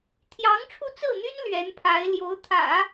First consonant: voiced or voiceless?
voiceless